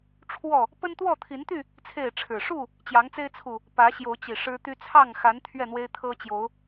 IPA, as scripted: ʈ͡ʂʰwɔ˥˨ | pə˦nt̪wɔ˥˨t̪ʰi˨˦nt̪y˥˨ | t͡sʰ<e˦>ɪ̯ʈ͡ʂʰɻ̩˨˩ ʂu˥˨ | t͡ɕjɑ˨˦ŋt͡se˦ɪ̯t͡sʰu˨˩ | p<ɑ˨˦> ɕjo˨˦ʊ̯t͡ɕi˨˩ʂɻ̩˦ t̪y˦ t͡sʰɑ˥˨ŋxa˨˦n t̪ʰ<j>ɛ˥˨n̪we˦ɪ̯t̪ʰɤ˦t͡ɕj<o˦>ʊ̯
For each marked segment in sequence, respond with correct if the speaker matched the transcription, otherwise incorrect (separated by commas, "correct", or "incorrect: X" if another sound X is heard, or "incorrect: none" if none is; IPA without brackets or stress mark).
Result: incorrect: e˥˨, incorrect: ä˨˦, incorrect: ɥ, incorrect: o˨˦